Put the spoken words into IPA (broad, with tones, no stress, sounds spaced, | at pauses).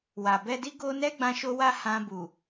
w a˨ b ɛ˧ d i˦ ɡ o˦ n ɛ˦ ɡ͡b ã˧ ʃ o˧ w a˦ h ã˧ b u˨